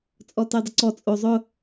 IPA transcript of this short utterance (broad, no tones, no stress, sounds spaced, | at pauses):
t͡sʼ ɔ t e dˤ ɪ ǀ ɔ t͡sʼ o zˤ ʊ